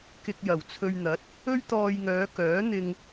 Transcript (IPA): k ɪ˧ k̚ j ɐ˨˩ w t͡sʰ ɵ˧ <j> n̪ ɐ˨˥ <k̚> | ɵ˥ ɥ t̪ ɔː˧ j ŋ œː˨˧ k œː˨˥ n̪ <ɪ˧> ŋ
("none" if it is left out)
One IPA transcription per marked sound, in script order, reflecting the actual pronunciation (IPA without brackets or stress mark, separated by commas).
ɥ, t̚, ɪ˧